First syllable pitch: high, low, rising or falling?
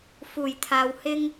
low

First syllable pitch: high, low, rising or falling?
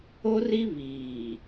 high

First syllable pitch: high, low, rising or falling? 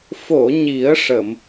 low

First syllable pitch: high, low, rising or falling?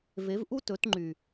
rising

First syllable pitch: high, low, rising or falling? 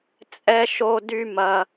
high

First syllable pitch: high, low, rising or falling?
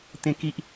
high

